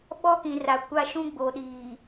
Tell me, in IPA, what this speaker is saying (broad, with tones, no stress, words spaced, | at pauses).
ɓɔ˦kĩ˨ra˨ kʷa˦ʃũ˦ ɡ͡bo˨ɗiː˨